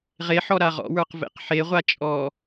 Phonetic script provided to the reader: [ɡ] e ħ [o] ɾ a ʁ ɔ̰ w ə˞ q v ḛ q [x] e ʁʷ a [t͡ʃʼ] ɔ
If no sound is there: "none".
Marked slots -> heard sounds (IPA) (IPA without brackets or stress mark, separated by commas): ʁ, ɔ, ħ, t͡ʃʼ